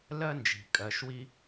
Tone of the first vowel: high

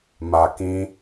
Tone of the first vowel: low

